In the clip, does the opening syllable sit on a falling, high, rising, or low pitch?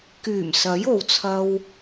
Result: low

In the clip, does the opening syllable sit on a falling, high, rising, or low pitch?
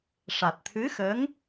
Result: low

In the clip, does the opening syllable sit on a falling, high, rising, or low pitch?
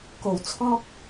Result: low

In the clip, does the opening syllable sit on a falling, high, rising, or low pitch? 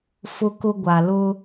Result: high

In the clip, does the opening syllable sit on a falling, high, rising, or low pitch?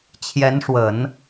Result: rising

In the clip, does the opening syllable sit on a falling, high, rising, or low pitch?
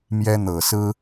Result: high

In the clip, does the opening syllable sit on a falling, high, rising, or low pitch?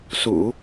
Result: low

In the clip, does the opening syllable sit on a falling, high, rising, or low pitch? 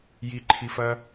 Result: low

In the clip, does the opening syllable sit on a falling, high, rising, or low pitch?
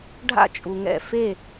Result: falling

